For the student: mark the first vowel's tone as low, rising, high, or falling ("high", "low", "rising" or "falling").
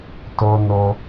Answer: high